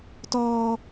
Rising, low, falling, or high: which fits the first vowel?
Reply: high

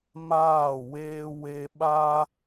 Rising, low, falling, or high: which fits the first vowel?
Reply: falling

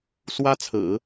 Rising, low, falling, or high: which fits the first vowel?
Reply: high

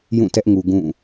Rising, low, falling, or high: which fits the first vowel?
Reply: falling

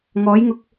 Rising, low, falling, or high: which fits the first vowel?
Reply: rising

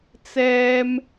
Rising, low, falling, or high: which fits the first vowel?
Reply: high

